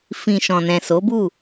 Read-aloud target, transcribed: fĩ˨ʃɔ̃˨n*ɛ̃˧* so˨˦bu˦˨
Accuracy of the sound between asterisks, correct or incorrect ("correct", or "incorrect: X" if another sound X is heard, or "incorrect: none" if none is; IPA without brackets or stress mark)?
incorrect: ɛ̃˨